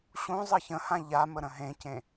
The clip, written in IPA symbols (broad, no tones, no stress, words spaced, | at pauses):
ɕũ zˤɤçə̃hã ʎamə ɾə̃ɦẽcẽ